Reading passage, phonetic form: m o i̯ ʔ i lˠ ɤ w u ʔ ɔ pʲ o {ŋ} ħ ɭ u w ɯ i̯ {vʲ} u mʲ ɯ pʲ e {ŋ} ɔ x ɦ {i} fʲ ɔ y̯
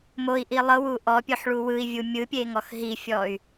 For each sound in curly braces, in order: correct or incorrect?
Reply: incorrect: none, correct, correct, correct

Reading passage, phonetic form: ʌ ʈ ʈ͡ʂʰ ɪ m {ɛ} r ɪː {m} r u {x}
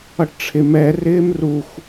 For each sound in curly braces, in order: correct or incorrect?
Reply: correct, correct, correct

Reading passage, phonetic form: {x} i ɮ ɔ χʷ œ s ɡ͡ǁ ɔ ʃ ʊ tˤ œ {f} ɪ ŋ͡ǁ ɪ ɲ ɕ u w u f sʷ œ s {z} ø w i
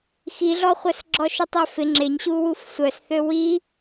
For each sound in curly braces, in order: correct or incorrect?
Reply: correct, correct, incorrect: θ

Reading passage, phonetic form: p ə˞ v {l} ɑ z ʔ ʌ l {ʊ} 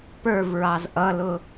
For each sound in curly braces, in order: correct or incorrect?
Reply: incorrect: ɹ, correct

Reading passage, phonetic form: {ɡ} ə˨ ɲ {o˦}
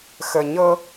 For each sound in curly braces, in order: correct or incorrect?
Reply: incorrect: x, incorrect: ɤ˦

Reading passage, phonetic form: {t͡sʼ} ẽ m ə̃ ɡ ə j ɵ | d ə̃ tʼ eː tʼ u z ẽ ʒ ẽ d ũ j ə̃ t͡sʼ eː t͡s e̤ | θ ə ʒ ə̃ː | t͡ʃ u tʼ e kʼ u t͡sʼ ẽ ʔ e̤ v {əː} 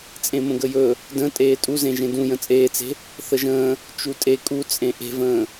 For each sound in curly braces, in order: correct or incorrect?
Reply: correct, incorrect: ə̃ː

